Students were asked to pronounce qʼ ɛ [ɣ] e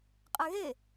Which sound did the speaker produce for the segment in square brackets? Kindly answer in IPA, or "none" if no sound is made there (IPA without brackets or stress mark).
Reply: ɣ